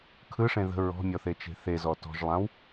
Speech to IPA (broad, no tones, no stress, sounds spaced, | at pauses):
kʰ ɯ ʂ ẽ ð ə̤ ɹ ɔ̤ mʲ ɔ θ e t͡ʃ e̤ θ e z ɔ t ɔ̤ ʒ lˠ ã w